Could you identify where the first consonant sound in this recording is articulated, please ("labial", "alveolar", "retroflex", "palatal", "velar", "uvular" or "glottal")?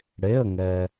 retroflex